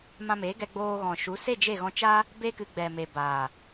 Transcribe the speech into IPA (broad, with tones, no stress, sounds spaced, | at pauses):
m ã˧ m eː˨˦ ɡ ɛ˧ ɡ͡b oː˧ ɣ ɔ̃˨ ʃ u˨˦ s e˦˨ d͡ʒ e˦˨ ɣ ɔ̃˧ t͡ʃ aː˦ | b e˦ k ɨ˧ ɡ͡b ɛ˨ m e˨ b aː˨